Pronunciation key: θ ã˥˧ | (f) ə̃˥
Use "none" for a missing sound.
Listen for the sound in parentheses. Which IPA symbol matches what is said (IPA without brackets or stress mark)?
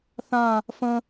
f